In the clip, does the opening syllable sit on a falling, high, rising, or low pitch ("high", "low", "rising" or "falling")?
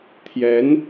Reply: rising